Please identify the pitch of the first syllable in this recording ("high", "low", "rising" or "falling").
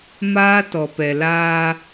high